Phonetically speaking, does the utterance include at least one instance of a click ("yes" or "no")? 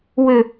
no